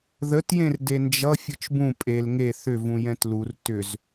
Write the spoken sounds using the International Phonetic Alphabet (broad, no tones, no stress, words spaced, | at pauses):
ðətjẽr dend͡ʒʌ fʲɯt͡ʃbũ pʼel ŋe θʏvũjɛ̃t lur tʏz